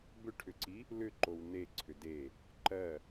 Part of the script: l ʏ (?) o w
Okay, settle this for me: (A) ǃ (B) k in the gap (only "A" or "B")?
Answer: A